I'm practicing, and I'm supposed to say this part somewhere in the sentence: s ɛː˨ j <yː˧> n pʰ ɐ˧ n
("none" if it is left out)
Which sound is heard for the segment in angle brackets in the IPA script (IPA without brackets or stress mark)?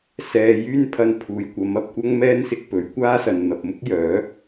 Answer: yː˥